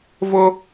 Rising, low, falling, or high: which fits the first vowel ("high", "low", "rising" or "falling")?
high